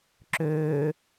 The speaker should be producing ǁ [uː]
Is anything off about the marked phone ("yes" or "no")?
yes